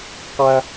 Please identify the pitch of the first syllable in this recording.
high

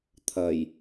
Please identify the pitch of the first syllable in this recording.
low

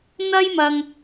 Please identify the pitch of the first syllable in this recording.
high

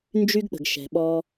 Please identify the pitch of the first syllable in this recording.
high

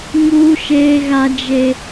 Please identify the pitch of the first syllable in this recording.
high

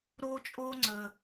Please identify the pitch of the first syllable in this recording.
high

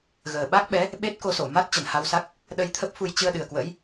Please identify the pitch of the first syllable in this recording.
low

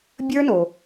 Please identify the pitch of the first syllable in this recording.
high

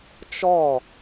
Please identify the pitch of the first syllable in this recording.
falling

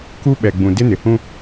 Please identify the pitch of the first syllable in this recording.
high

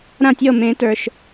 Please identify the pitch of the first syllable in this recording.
falling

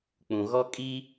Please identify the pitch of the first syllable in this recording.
low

